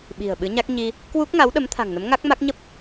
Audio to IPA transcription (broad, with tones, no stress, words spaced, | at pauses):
ɓi̤˨˩ə̯ɓɨ˨˦ɲa˦˥k̚ ɲi˧ | kwu˦˥k̚ŋa˨˦wɗə˨˦m t̪ʰa̤˨˩ŋnə˨˦mŋa˦˥k̚ma˦˥k̚ ɲə˦˥p̚